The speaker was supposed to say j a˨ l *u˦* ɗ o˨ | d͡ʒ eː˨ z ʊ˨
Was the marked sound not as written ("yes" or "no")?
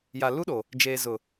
no